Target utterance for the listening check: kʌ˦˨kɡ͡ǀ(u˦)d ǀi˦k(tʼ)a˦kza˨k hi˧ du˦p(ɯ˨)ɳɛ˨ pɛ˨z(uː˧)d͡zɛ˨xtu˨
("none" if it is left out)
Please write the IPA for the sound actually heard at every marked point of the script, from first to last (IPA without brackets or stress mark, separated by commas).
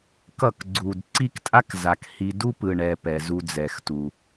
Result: u˨, tʼ, ɯ˨, u˧